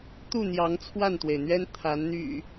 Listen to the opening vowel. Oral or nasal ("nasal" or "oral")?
oral